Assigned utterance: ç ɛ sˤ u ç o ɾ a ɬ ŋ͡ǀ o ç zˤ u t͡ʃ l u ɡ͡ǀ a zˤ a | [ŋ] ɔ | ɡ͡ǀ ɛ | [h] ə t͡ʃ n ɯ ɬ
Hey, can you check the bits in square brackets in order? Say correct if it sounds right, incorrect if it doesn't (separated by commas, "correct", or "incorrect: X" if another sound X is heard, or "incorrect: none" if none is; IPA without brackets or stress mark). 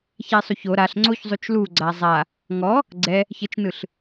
correct, incorrect: ç